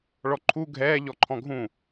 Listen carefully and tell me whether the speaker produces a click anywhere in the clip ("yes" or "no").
yes